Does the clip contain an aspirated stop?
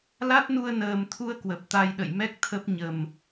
yes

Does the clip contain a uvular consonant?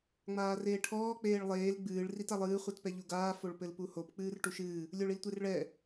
yes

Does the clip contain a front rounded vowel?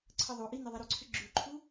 yes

